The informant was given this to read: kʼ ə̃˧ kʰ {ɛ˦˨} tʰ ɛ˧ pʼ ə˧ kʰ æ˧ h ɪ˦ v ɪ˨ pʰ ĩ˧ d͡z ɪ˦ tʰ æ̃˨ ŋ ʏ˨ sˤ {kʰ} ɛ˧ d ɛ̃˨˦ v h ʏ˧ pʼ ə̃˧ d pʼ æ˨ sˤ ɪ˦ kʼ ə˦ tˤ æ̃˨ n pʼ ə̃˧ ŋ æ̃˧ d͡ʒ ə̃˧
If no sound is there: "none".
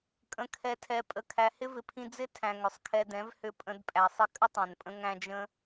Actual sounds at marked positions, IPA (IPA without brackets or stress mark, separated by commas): ɛ˧, kʰ